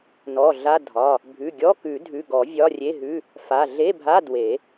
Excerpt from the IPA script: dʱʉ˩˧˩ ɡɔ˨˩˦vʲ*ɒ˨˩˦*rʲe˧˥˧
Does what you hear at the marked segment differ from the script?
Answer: yes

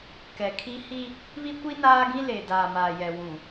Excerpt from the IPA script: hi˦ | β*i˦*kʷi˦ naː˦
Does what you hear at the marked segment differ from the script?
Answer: no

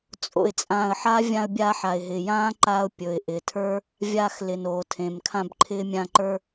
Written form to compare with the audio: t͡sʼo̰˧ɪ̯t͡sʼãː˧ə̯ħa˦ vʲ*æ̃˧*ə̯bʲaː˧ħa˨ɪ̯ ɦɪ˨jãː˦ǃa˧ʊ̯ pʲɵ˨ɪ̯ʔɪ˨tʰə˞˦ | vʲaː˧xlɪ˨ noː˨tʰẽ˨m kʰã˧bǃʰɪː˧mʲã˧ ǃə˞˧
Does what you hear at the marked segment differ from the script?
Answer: yes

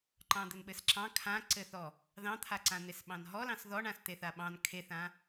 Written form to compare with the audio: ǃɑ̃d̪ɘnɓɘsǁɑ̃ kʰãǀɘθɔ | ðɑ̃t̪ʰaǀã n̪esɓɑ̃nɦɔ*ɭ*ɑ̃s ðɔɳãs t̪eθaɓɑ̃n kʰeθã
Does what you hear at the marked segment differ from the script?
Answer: yes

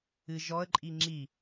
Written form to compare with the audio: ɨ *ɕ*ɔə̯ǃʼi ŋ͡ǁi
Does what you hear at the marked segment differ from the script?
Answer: yes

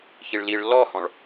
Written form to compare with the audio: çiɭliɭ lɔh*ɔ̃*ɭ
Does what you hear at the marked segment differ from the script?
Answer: no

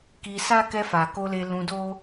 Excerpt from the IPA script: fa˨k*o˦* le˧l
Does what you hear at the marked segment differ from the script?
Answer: yes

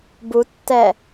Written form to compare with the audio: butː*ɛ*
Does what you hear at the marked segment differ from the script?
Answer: no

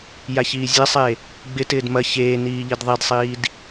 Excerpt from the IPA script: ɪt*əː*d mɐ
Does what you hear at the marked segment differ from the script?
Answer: yes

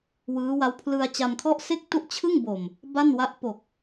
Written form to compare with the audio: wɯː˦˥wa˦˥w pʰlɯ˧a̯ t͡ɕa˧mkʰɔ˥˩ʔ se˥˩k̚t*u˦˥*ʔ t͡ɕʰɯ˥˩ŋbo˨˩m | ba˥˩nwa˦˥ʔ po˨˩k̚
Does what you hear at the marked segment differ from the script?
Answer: yes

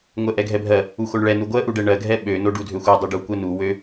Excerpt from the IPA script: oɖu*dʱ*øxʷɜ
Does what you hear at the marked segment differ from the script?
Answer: no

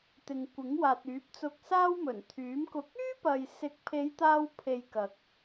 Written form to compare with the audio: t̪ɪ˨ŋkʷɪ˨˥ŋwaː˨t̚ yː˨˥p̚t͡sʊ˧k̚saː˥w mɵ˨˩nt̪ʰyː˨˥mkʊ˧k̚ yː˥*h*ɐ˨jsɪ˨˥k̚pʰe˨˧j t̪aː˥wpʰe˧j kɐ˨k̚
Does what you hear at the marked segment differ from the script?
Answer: yes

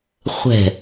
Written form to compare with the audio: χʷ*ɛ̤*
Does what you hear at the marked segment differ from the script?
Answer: no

